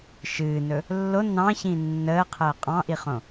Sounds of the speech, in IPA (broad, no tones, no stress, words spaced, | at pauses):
ʃɨːnɵ | lːo nɑ̃çĩ nːəːqʰəː qʼɑ̃ʔiχõ